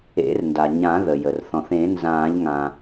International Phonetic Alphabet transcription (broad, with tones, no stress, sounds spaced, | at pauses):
ḛ˨˩˦ r n d a˩ ɲ ã˨˩˦ ð ə˩ j ə˩ r θ ɔ̃˩ θ ẽ˨˩˦ n z ãː˨˩˦ ʎ ŋ ã˩